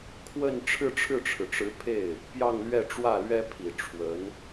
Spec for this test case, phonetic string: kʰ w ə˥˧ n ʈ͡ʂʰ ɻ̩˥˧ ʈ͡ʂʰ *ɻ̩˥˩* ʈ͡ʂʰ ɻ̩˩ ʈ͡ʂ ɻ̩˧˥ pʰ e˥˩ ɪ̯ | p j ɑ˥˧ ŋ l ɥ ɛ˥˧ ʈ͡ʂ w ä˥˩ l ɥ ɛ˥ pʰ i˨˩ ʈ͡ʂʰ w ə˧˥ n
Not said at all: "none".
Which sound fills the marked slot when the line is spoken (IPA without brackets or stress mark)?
ɻ̩˥˩